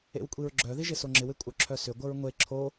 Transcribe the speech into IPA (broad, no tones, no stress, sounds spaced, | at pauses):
ḛ w kʷʼ i ɹ ɡ͡ǁ œ ð i ʒ ɪ s o ŋ͡ǁ ɪ w ɪ kʷʼ œ ǁʰ œ s ʏ ɡʷ ə ɹ ŋʷ e ǁʰ o